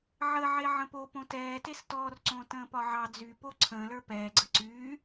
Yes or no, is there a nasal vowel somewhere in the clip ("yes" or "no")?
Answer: yes